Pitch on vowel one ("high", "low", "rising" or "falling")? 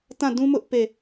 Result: falling